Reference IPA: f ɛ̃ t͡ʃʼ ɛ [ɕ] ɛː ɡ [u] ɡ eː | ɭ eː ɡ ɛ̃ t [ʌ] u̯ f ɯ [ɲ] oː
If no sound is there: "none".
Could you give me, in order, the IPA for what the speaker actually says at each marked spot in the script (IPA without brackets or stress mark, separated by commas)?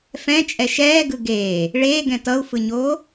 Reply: ʃ, ɯ, ʌ, ɲ